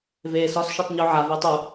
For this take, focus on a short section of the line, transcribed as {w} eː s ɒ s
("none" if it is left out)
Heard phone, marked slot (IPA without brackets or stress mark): v